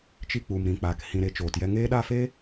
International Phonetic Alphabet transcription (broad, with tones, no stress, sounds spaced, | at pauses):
t͡ʃ i˧ k͡p u˨ m ɾ ĩ˨ k͡p aː˨ k h ĩ˨ ɾ e˨˦ t͡ʃ oː˨ t j ɛ˧ ŋ eː˦ ɗ a˦˨ f eː˦